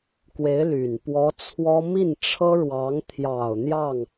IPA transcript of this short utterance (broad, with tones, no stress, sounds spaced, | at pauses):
k w e˧˥ ɪ̯ l y˨˩ n p w ɔ˧˥ t͡sʰ w ɔ˥ m i˥˩ n ʈ͡ʂʰ ɤ˥ ɻ w ɑ˧˥ ŋ t̪ʰ j ɑ˨˩ ʊ̯ n̪ j ɑ˥˩ ŋ